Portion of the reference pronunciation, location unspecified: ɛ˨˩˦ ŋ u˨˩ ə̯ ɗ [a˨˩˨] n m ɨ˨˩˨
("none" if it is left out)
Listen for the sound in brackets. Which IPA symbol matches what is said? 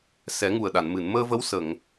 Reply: a˨˩˨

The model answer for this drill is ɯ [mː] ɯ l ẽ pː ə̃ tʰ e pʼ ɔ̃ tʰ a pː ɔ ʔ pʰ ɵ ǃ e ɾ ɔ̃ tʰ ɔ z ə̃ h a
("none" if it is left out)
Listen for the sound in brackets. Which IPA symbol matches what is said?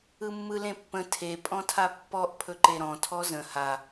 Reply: mː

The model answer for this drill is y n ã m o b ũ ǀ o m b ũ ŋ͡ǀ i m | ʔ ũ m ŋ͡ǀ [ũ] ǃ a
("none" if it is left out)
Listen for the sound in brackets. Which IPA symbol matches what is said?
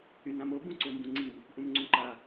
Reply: ũ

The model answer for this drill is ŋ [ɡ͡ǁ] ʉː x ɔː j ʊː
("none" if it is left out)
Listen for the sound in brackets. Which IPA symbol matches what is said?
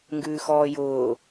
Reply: ɡ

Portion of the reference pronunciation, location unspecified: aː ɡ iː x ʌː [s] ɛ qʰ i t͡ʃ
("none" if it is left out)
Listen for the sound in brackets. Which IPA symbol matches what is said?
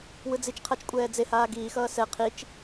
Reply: s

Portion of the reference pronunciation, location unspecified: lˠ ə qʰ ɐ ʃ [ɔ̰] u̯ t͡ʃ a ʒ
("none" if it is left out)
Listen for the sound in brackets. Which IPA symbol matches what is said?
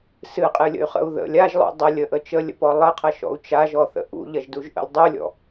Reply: ɔ̰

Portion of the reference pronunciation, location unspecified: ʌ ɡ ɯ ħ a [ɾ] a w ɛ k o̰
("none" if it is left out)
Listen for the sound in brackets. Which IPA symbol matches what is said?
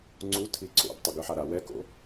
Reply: ɾ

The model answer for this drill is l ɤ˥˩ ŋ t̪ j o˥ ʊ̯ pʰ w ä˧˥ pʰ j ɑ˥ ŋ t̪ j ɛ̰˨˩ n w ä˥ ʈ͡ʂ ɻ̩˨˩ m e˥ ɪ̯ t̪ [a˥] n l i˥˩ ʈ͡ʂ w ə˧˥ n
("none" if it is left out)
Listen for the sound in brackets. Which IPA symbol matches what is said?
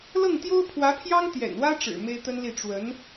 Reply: ə˥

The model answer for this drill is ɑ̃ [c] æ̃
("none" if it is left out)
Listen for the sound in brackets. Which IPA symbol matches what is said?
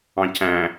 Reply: c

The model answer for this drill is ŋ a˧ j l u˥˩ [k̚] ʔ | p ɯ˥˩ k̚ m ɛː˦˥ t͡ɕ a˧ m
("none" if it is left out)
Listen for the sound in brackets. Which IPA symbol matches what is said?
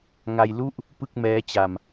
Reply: none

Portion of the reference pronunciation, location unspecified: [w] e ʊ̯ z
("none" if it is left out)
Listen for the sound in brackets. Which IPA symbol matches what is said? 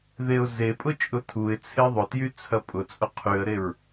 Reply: ð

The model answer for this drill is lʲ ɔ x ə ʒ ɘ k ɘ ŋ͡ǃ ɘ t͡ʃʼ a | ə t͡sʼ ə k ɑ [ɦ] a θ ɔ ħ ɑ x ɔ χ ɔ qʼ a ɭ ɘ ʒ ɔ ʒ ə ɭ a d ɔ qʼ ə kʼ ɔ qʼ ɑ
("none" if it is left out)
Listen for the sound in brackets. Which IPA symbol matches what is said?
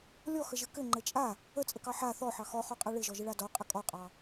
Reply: ħ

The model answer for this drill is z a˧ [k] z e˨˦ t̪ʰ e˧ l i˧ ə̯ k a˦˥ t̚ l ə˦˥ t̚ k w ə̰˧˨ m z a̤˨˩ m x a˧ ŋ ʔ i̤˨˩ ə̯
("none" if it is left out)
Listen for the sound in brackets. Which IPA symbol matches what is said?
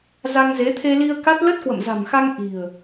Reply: ŋ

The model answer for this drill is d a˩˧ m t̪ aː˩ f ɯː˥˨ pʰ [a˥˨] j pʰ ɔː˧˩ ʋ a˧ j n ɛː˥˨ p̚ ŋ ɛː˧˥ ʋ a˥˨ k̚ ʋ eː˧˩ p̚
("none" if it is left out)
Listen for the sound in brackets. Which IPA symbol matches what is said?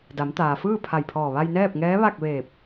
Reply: a˧˩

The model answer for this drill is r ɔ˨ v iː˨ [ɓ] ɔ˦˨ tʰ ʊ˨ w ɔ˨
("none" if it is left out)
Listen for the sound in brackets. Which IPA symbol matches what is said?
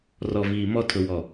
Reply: m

